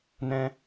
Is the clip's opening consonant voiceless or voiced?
voiced